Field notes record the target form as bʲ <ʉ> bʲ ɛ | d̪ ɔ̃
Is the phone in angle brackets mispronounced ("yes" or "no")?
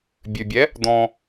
no